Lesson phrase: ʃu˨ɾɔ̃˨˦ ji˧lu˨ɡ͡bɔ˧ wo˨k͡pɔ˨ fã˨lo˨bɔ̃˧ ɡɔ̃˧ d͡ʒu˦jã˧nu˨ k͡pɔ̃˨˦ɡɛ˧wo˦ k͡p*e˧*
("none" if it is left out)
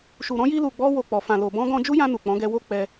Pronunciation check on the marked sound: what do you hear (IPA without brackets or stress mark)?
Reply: ɛ˧